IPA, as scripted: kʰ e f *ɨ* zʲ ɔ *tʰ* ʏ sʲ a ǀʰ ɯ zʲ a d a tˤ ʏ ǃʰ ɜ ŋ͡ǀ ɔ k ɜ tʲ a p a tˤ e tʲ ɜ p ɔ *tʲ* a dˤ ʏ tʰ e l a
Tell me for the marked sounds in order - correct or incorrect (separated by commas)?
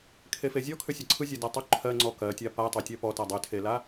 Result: incorrect, incorrect, incorrect